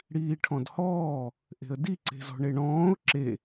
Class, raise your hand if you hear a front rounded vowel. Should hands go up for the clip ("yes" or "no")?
no